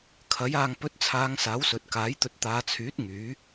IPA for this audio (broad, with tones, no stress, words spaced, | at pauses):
kʰɐ˨˥j aː˨ŋpɵ˨˥t̚t͡sʰaː˨˧ŋ saː˨˥wsɵ˨t̚kaː˨˥jt̪ɵ˧t̚ t̪aː˨˧t͡sʰyː˨˥t̚ ŋyː˨˥